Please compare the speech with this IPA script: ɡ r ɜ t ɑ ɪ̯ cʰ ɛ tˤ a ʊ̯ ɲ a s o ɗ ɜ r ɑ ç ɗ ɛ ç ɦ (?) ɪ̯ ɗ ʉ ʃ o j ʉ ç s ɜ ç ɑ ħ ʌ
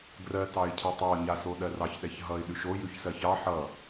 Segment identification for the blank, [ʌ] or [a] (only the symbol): ʌ